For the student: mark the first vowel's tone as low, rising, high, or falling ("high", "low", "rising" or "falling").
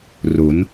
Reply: rising